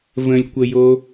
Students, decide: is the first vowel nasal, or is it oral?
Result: nasal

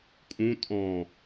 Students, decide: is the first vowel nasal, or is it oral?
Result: nasal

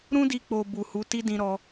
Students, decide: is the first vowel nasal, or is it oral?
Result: nasal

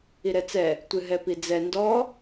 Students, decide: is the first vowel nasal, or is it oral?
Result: oral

